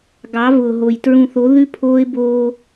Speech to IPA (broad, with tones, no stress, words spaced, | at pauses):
ɡɑ˨˦vʊː˨ɦo˨j tɹũ˨θo˨˦ ðʉ˦pʰoː˦ɪ̯boː˦